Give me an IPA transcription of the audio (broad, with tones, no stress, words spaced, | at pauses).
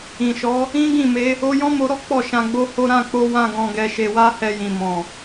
ĩ˨ʃɔ˨˦ | ĩ˦ɡĩ˦˨me˧ | o˧jɔ̃˦mo˧ɾɔ˦ k͡pɔ˦˨ʃã˧ɡ͡bo˦ho˦ ɾã˦˨k͡po˧ wã˦ɡɔ̃˧ɡɛ˧ ʃe˧wa˦hɛ˧jĩ˨ mɔ̃˨